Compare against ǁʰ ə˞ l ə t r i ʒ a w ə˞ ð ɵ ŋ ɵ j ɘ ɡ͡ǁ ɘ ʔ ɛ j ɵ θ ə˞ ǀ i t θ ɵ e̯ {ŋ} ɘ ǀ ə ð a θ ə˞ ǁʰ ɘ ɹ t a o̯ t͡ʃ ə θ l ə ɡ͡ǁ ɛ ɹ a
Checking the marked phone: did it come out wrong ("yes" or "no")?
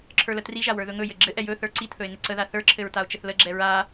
no